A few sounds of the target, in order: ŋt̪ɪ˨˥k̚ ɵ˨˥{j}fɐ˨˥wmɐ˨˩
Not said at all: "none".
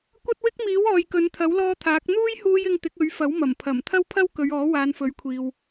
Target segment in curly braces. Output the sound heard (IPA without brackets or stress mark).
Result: ɥ